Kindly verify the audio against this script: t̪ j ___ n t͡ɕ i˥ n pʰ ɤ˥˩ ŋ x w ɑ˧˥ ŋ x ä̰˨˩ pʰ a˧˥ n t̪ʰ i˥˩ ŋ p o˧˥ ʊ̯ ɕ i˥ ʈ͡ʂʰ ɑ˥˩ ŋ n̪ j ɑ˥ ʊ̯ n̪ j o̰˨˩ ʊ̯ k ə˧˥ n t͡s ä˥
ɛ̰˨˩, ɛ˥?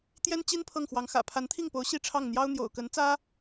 ɛ˥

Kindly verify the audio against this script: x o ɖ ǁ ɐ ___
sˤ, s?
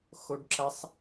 sˤ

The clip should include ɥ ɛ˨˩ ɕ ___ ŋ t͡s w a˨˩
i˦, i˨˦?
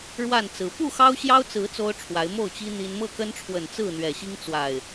i˦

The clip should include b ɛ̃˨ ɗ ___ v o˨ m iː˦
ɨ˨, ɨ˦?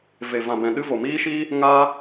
ɨ˦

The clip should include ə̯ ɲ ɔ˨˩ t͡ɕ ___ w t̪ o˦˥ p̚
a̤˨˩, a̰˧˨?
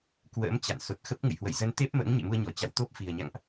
a̰˧˨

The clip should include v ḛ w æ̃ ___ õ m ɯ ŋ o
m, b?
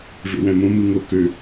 m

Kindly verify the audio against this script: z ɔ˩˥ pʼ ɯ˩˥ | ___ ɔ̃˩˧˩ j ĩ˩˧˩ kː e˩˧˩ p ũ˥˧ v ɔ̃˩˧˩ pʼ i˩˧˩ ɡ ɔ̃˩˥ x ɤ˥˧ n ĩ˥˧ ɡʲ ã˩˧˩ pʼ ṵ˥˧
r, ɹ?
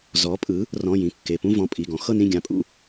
r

